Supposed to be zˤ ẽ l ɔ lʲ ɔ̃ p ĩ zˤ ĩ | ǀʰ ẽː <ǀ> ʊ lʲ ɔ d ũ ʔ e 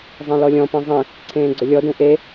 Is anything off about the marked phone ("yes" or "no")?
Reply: yes